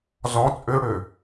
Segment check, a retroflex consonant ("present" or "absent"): present